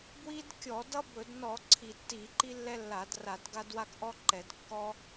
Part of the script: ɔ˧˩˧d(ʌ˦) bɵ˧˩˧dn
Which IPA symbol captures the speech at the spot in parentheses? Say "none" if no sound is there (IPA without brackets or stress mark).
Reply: ʌ˦